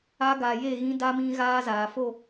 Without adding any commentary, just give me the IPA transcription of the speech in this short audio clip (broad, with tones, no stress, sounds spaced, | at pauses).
a˦ ɡ a˨ j e˦˨ ɣ ĩ˦ d a˦ m ĩ˦ ɣ aː˦ z aː˨ f o˦˨